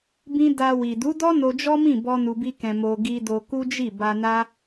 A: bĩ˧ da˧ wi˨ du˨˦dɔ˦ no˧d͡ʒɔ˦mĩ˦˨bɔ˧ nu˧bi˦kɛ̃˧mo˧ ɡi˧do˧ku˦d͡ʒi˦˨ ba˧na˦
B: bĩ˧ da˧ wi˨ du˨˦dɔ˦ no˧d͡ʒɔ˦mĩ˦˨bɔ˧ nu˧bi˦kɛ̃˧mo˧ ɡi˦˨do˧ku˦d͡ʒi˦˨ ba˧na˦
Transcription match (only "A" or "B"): A